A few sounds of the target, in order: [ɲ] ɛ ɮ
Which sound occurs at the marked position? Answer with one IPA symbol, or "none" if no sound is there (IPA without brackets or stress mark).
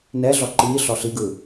n